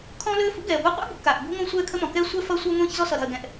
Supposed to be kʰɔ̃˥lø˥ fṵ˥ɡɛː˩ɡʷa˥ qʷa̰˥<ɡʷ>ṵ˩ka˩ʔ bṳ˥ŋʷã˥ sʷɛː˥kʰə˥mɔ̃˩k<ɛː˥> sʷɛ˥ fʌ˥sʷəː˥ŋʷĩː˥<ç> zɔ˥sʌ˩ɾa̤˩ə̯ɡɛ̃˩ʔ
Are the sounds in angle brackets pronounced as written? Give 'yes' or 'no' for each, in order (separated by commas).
no, yes, yes